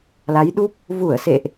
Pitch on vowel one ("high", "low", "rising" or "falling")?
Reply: rising